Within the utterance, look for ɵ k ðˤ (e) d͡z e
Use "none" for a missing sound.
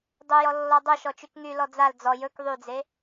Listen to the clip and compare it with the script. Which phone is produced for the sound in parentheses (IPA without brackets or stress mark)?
y